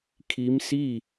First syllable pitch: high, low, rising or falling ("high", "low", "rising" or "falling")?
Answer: rising